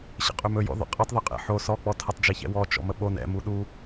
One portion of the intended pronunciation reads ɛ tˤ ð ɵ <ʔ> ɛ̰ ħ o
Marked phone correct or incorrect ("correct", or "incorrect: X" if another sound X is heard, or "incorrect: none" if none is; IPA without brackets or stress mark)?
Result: incorrect: qʼ